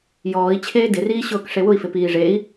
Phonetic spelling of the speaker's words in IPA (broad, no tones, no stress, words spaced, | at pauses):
jɔːi̯ t͡ɕʰeːdɪriːɕʊːk ʂewʊi̯fɪ piːʐei̯